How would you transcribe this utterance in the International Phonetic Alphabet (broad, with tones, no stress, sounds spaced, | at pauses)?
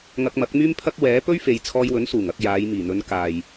ŋ ɐ˧ k̚ m ɐ˨˥ k̚ m yː˥ m pʰ ɐ˥ k̚ w ɛː˨˥ p ɵ˥ ɥ f e˨˧ j t͡sʰ ɔː˧ j w ɵ˨˥ n s uː˨˩ ŋ ɐ˧ k̚ j aː˨˧ j m iː˨˩ n̪ ɵ˨˧ n k aː˨ j